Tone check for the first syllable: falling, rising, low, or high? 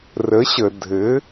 rising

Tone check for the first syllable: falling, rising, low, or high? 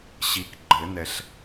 low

